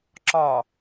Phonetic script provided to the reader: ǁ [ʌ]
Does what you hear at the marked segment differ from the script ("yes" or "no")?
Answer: yes